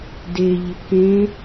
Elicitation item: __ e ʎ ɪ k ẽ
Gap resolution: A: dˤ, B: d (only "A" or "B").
B